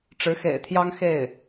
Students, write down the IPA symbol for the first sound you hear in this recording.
ʈ͡ʂ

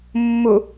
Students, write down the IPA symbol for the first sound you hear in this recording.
mː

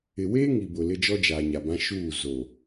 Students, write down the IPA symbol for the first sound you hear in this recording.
ɪ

